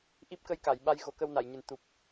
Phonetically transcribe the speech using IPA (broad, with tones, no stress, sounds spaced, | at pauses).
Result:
ʔ i˦˥ p̚ k ə˧ j k a˨˩˨ j ɓ a˧ j ɣ o˨˩˦ k ə˧ w n a˨˩˨ j ɲ ɨ˨˩ n t̪ u˨˩ p̚